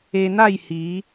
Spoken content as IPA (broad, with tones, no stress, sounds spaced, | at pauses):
e˧ n̪ a˥˧ j h i˨˦